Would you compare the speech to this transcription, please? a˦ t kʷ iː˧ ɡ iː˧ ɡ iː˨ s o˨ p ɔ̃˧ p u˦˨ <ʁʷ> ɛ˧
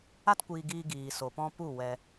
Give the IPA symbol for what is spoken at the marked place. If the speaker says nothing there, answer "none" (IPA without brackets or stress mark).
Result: w